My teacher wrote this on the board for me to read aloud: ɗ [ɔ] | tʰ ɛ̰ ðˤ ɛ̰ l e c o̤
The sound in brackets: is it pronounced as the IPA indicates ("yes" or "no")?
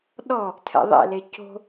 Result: yes